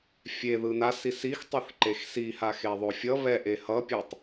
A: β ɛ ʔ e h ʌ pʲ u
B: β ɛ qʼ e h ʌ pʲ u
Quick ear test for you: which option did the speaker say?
A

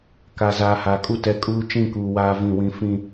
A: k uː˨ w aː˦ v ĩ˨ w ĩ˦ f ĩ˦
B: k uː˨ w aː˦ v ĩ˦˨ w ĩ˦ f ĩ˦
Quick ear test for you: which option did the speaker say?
B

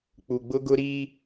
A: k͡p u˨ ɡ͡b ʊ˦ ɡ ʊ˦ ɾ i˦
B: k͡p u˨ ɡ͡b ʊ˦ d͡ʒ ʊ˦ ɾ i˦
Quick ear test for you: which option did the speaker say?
A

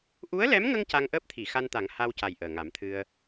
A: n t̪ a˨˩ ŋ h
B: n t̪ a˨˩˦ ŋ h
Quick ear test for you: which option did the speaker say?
B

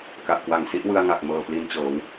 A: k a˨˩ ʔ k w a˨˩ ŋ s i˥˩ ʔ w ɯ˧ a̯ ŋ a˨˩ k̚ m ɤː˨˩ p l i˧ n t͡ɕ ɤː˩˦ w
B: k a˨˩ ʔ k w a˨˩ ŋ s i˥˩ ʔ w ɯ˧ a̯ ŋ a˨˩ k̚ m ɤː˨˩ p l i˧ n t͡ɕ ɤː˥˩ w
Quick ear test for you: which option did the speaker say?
A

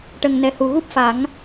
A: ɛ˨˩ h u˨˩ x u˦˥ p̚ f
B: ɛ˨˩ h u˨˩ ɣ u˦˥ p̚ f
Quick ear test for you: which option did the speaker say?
B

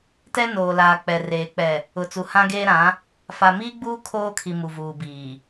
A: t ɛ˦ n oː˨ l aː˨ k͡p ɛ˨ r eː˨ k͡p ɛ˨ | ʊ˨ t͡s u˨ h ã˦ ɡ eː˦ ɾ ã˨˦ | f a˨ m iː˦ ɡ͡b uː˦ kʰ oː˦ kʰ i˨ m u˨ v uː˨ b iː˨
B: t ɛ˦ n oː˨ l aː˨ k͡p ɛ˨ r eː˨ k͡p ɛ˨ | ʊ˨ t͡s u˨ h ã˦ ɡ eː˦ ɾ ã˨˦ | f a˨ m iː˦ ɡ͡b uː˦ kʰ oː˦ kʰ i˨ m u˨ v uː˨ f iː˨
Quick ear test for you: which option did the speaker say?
A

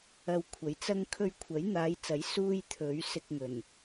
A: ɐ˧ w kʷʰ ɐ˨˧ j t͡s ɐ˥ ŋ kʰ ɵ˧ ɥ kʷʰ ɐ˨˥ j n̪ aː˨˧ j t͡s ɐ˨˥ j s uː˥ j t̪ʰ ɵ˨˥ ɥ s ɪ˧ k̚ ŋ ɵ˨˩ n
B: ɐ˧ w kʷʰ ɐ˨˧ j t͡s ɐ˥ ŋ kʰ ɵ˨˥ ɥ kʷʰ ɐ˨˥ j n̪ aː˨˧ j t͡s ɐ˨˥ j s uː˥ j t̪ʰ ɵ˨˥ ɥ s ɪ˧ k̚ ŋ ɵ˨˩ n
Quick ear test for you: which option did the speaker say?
A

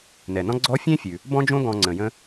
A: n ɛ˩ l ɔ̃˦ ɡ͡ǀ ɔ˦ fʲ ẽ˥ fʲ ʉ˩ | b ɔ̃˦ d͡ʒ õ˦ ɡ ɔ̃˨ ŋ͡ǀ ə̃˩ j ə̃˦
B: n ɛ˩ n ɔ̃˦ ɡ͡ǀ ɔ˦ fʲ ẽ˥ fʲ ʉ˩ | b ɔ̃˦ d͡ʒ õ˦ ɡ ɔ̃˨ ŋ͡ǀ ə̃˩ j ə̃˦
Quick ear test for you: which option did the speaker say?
B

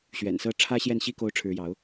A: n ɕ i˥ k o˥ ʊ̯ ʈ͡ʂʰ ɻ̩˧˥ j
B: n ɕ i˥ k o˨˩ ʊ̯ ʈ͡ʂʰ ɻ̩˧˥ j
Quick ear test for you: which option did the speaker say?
A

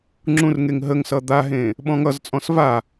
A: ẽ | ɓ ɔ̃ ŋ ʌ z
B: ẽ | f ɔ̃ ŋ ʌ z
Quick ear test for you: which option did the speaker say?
A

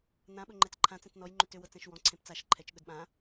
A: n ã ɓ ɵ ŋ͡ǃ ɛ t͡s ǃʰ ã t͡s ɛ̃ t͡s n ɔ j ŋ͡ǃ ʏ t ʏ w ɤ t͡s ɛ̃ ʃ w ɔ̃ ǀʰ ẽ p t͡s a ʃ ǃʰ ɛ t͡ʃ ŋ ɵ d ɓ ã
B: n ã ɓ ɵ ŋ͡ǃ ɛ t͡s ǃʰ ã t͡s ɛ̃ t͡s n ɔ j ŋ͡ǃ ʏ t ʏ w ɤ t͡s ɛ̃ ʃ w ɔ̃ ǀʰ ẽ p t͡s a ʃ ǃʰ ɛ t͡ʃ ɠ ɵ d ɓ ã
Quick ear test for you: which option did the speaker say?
B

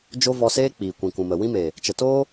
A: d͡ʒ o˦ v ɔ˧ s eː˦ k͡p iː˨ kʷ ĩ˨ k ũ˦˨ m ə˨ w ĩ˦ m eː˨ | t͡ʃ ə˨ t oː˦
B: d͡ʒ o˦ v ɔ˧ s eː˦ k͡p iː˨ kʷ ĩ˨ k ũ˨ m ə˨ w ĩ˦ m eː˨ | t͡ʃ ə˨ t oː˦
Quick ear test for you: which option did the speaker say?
B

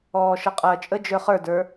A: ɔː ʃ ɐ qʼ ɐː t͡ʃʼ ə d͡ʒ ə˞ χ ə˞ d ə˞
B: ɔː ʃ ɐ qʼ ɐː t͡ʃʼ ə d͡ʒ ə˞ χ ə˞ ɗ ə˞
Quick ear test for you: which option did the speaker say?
A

